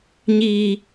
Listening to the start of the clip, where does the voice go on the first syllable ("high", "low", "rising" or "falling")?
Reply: high